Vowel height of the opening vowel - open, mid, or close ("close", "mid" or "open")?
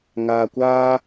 open